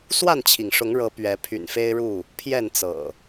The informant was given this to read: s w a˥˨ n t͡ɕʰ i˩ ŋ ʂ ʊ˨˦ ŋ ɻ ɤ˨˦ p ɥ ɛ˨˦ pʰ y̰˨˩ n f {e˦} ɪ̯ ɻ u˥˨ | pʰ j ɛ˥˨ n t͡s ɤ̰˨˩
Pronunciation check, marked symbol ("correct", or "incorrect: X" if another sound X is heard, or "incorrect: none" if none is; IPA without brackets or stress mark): correct